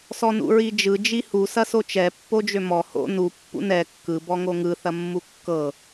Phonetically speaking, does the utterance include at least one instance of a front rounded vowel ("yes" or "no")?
yes